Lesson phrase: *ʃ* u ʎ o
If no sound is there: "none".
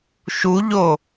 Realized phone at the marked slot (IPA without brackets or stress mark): ʃ